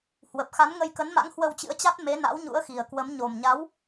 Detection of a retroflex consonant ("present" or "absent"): absent